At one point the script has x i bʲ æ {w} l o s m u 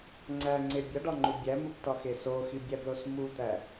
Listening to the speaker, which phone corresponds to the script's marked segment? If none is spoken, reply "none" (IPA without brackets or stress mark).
b